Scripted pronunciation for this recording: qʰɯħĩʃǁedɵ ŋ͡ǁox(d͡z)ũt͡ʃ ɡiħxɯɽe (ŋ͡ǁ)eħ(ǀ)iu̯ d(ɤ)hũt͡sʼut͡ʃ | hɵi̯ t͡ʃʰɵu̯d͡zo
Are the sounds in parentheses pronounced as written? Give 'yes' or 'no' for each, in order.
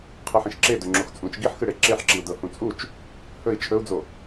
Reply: no, no, no, yes

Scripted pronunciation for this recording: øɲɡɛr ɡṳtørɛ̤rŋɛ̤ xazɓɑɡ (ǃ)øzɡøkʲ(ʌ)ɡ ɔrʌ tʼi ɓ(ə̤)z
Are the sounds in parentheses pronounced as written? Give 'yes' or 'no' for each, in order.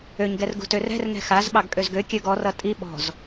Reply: no, no, no

